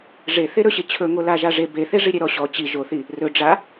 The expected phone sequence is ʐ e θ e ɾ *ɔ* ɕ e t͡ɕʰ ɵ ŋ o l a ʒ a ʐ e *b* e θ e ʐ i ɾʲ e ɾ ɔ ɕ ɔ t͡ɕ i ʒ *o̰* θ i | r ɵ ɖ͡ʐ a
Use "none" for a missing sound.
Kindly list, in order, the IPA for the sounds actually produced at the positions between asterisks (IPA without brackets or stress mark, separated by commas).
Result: ɵ, b, o